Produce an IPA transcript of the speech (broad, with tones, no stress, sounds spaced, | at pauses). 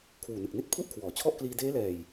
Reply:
kʰ w uː˨˩ n ɯ˨˩ k̚ n i˦˥ t̚ pʰ u˥˩ ʔ kʰ w ɔː˩˦ t͡ɕʰ ɔ˥˩ ʔ k l iː˧ d eː˦˥ l ɛː˨˩ j